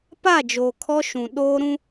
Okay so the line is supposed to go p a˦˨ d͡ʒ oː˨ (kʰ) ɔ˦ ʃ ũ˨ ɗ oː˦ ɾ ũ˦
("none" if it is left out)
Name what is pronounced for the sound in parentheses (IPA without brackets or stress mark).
kʰ